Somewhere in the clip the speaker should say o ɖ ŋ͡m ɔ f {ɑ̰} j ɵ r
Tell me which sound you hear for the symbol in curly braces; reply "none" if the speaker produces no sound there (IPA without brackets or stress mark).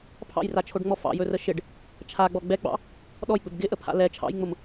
ɑ̰